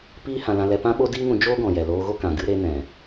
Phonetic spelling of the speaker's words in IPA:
piː˦hã˧lã˧lɛ˧ pã˦ɓo˦diː˦ŋũ˧ d͡ʒoː˦ɡɔ̃˨jɛ˨ loː˧ɣo˦kã˨ ɡɨ˧ ɾe˧nɛ̃˨

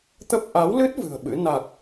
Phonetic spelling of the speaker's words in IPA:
t̪ə˦˥p̚ ʔa˨˦wlɨ˦˥t̚ vɨ̤˨˩ə̯ɓɨ̰˧˥ na˨˩k̚

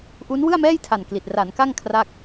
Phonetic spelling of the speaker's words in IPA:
ʔu˦˥n wɯ˥˩a̯mɛː˥˩jtʰa˨˩n kli˨˩t̚ ra˩˦nka˥˩ŋ kʰra˥˩k̚

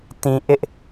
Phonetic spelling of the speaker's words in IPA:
tĩ˦ ʔɪ˦ʔ

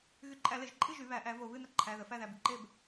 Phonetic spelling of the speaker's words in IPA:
ɣy˧˩˧ǃʼæ˧˩˧ le˧˩˧ʒǃʼɨ˥˨ʒy˩˧ βæ˩˥ʔæ˩˥vo˧˩˧ βɨ˥˨nə˥ ǃʰæ˩˧˩ðə˩˧ fæ˥˨ðæ˩˧˩bɨ˩˧ ǃe˥˨b

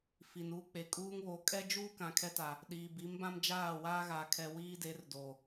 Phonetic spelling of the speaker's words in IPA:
fi˨nuː˦k͡pe˨ kʼuː˦ŋβo˨˦ kʼɛ˦d͡ʒuː˦ kã˨kʰɛ˦ta˨ | ɗiː˨bi˨˦mbã˦md͡ʒaː˦˨ waː˦ɣaː˨kʰɛ˨ wiː˦de˨˦rdoː˨

